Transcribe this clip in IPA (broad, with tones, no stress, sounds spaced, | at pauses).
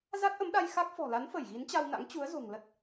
z a˦˥ t̚ ʔ ə˨˦ m ɗ a˧ j x a˦˥ k̚ f ɔ̤˨˩ l a˨˦ n f ə˧˩ j ɣ i˨˦ n t͡ɕ a˧ w n a̰˧˥ ŋ t͡ɕ u˨˦ ə̯ z o̤˨˩ ŋ l ə˦˥ t̚